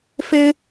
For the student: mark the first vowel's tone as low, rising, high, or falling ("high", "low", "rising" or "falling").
high